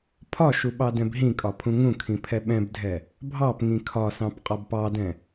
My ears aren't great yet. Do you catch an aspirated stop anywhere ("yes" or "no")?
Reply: yes